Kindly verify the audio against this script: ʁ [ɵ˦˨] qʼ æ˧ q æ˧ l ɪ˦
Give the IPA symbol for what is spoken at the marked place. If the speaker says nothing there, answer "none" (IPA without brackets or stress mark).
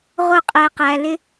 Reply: ʊ˦˨